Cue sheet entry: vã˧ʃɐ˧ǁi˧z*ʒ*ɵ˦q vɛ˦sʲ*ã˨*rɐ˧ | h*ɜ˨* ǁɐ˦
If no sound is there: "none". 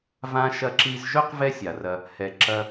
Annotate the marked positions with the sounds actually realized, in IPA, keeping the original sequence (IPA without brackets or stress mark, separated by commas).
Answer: ʒ, a˨, ɛ˨